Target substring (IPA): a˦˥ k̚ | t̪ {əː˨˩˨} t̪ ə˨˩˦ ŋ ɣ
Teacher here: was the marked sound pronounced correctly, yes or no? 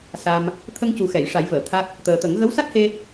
no